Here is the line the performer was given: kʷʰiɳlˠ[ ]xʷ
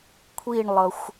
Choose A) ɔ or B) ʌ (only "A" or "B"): B